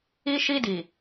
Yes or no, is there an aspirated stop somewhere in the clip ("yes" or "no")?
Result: no